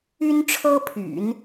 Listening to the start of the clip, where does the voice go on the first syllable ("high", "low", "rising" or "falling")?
high